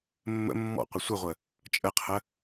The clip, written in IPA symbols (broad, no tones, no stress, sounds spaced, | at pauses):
mː ə̰ mː ɔ̰ qʷ ə sʷ ə ʁʷ ə | t͡ʃʼ ə qʰ ə